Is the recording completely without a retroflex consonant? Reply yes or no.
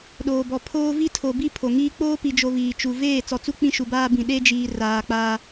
yes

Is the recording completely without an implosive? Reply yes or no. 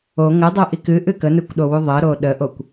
no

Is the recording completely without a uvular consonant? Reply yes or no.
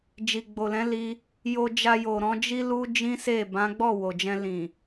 yes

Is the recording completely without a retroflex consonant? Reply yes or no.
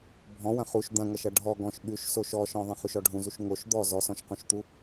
no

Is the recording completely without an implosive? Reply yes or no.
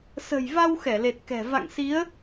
yes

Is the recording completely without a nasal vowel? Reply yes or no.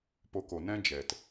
no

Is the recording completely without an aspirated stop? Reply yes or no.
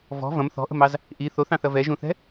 yes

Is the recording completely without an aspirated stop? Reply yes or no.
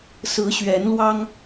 yes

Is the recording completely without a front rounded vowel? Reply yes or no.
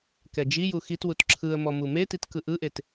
yes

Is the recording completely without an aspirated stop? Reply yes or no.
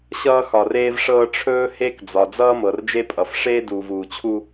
no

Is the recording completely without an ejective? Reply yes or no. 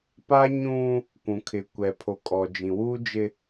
no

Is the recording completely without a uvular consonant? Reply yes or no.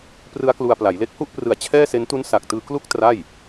yes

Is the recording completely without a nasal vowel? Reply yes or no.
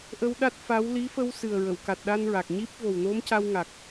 yes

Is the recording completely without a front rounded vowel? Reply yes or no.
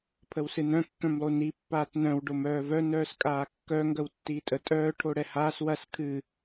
no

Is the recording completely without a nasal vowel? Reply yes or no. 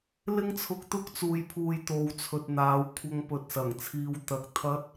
yes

